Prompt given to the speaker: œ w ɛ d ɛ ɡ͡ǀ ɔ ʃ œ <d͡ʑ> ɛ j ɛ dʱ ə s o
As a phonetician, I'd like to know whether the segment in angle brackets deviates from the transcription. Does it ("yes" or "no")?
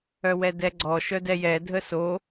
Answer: yes